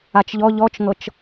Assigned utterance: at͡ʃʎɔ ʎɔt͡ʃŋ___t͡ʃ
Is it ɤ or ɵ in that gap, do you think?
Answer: ɤ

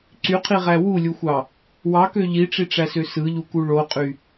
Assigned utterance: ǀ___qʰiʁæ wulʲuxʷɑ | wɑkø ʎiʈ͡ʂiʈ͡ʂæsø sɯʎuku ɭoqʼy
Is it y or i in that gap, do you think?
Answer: y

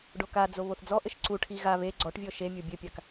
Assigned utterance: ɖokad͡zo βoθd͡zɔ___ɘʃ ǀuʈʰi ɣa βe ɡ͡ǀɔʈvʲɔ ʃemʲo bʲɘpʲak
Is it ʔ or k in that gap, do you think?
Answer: ʔ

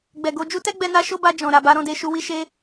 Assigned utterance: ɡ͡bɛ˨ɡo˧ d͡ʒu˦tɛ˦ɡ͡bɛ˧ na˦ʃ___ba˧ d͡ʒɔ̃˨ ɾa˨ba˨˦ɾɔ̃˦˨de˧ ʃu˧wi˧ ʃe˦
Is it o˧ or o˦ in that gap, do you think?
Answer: o˦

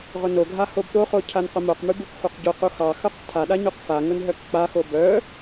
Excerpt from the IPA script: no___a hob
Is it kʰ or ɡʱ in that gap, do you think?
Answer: ɡʱ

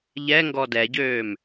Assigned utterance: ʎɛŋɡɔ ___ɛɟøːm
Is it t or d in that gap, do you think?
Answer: d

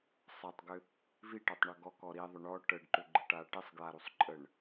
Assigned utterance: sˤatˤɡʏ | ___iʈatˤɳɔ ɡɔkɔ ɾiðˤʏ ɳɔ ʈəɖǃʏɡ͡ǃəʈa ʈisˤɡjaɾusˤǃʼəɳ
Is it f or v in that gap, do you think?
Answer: v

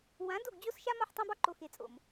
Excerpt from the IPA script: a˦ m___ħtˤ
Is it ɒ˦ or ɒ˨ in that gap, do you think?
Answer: ɒ˦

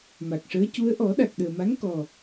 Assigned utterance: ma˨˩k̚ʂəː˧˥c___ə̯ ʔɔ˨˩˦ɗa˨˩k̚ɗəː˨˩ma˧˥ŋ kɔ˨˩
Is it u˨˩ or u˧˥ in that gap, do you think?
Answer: u˧˥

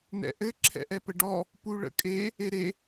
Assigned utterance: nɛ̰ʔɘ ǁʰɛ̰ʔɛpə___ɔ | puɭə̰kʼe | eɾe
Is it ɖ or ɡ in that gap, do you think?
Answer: ɖ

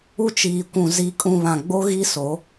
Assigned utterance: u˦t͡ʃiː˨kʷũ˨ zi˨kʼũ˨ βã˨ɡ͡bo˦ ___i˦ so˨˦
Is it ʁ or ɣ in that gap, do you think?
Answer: ɣ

